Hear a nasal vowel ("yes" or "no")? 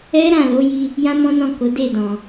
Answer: yes